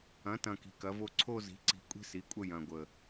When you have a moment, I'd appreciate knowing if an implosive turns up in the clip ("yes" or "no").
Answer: no